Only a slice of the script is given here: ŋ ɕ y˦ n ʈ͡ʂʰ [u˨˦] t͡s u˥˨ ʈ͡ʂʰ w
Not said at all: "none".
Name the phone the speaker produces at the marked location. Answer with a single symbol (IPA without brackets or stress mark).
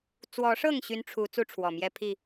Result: u˨˦